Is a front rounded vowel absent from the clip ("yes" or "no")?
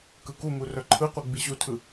no